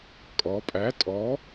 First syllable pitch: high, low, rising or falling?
rising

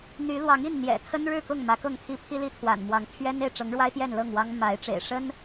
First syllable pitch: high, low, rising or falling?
rising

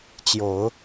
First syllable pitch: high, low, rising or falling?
low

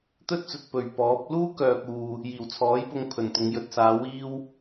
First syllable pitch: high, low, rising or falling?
high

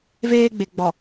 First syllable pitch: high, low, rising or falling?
high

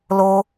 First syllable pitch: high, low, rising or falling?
high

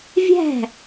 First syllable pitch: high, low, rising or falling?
falling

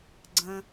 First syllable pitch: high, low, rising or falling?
high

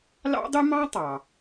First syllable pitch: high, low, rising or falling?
high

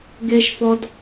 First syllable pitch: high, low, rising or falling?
low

